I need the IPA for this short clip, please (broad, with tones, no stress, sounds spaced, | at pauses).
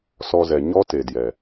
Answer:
s ɔ˧ z ɛ˨ ɲ ɔ˦ t e˨ d j ɛ˨